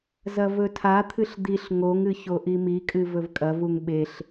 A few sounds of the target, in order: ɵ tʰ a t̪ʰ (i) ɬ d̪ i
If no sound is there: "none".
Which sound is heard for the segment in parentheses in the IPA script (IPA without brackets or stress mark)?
ɨ